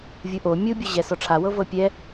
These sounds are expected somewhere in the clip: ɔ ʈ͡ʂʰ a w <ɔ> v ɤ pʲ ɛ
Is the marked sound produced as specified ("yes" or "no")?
no